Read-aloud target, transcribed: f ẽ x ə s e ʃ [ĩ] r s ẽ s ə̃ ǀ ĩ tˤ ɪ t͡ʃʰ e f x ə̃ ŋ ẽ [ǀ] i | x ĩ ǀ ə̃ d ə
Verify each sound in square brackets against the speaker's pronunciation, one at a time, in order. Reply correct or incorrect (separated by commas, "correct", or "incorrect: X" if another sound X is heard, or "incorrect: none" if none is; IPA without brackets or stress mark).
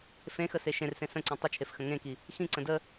incorrect: ẽ, incorrect: k